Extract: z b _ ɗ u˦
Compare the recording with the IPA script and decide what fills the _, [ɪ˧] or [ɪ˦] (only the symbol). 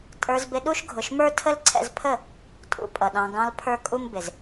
ɪ˧